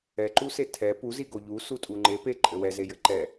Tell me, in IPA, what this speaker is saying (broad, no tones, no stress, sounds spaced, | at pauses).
ɛ ǃ u s e tʰ ɛ p u z i ɡ o ʎ u s u tʼ u ŋ͡ǃ e p e ǃʼ ɘ w ɛ z e j ɘ ǃ ɛ